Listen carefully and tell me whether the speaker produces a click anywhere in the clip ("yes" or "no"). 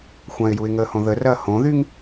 no